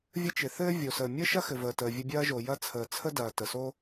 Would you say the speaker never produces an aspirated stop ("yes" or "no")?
no